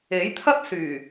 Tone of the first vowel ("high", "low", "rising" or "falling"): rising